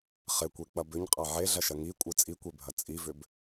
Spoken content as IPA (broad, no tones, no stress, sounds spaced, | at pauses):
χ ɪ kʷ e k͡p ɐ b ʏ ɲ qʼ a ʕ e ɮ ɐ ʃ ɐ ŋ i kʷʼ ɯ t͡sʼ i kʷ e bʱ ɐ t͡sʼ i v ʏ b